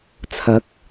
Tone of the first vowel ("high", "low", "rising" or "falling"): rising